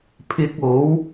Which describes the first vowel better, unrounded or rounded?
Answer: unrounded